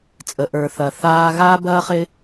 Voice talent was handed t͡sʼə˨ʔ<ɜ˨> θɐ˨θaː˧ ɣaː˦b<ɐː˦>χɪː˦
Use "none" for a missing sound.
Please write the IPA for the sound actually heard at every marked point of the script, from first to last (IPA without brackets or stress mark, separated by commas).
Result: ə˞˨, ɐː˦